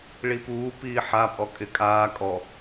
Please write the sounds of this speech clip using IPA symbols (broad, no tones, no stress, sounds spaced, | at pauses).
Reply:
ɭ i p uː p iː ħ a pʼ ɔ kʼ ɪ kʼ aː kʼ ɔ